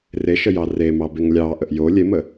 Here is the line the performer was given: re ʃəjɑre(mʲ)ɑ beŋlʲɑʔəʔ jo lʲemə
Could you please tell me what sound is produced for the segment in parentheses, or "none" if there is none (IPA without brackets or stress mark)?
m